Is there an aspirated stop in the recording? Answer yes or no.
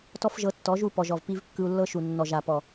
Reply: no